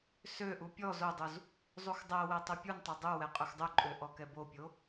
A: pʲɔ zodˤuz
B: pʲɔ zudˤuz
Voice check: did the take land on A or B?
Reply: A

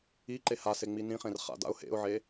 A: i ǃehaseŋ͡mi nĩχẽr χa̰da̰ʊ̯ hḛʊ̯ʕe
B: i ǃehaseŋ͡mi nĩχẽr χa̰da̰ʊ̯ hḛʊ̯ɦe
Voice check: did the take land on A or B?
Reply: A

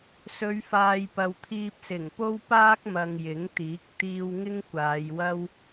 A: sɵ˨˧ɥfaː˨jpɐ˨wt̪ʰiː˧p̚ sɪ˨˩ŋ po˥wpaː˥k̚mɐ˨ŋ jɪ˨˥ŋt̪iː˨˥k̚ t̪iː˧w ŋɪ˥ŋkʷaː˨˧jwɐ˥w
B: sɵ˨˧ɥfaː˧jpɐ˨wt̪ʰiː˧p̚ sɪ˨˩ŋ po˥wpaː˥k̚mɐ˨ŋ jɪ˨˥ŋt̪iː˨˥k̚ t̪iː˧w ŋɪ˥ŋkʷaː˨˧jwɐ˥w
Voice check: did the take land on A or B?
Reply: A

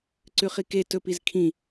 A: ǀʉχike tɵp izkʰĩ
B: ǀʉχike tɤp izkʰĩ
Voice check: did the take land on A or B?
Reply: A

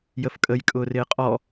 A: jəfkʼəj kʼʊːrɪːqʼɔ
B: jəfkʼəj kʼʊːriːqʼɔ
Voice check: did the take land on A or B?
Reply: A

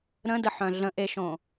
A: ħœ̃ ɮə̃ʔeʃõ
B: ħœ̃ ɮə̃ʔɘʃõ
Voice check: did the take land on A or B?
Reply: A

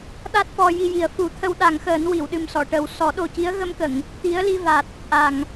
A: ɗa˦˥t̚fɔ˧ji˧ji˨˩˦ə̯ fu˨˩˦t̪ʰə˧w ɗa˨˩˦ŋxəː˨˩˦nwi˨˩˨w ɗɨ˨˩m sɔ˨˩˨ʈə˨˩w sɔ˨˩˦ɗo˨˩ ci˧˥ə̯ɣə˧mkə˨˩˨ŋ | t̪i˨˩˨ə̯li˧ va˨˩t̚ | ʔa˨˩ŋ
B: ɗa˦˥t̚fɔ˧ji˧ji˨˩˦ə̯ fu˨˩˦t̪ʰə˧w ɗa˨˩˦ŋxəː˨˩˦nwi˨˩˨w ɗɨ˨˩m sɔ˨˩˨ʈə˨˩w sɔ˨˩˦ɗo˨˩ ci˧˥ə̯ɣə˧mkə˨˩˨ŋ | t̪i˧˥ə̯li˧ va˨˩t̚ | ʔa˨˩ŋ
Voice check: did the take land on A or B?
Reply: B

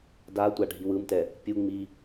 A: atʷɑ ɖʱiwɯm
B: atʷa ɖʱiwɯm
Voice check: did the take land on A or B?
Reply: B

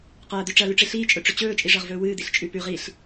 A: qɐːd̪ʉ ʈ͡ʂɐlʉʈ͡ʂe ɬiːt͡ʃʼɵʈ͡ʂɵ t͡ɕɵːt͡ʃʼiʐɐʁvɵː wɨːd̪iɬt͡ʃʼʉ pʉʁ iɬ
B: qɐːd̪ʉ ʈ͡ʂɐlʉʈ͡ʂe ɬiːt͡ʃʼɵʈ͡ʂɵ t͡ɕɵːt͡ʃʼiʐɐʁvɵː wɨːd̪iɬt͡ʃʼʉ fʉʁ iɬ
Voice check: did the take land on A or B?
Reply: A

